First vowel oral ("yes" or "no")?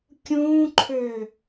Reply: no